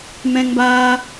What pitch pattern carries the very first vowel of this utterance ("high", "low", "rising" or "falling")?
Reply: high